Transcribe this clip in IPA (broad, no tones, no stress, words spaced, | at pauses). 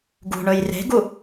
ɡṳɳɵj re̤ɡu